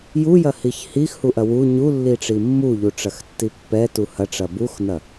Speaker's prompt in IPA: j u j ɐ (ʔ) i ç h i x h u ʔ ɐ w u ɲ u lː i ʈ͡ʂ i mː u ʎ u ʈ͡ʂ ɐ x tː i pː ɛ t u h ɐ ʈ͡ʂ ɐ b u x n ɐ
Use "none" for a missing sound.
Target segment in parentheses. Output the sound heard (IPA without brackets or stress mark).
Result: h